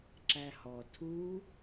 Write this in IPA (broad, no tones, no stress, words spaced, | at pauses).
ǁæhɔ tʰu